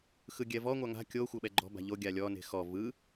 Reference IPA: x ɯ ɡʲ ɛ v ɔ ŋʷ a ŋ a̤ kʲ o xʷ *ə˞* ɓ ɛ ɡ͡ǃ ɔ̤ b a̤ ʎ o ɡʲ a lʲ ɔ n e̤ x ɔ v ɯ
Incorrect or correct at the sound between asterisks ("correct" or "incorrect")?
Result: incorrect